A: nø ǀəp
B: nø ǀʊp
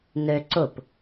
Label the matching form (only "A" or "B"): B